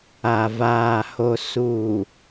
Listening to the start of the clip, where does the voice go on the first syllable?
low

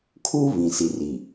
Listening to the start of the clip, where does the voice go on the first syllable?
high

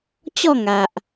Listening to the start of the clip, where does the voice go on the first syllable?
falling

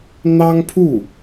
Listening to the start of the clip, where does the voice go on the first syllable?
high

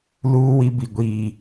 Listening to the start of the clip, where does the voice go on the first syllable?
high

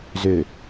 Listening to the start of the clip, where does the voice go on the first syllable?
low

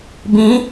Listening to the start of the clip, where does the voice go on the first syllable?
rising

